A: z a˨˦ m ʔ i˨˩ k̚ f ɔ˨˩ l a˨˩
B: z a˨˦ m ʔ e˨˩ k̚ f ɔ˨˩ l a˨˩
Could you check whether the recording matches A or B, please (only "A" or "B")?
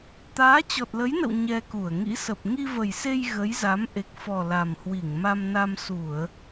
B